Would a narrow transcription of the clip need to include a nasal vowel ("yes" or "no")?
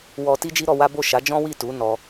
yes